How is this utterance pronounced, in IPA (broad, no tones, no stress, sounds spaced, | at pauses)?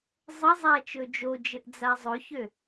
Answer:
zˤ ə zˤ æ t͡ʃ ɵ d͡ʒ o d͡ʒ ɘ ʔ d͡z a zˤ ɵ ç ø